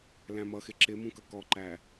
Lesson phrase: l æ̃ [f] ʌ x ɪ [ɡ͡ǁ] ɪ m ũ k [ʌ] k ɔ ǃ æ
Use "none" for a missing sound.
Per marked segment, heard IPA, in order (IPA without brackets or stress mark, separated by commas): m, ǁ, ʌ